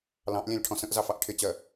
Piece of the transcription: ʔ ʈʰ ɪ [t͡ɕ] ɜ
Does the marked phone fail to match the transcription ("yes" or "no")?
no